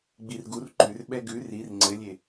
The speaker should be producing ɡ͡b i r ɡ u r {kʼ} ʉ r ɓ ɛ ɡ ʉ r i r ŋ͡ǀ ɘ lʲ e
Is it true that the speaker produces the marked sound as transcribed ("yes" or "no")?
no